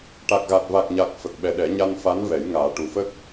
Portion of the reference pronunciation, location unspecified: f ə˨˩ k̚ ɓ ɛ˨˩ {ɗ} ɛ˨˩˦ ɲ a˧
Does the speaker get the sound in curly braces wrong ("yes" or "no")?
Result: no